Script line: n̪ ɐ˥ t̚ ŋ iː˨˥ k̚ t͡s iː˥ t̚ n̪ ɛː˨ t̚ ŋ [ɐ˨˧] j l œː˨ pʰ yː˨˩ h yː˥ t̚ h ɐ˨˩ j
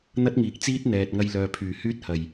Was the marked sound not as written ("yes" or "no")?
yes